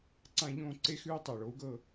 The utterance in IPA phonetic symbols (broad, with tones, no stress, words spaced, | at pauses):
ǀã˥˧ʎõː˥˧ ǀe˦˥xʉː˦˥ tˤɜ˧˩ɭo˩˥u̯ɡɤ˥˧